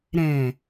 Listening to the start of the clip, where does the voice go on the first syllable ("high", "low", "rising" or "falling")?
low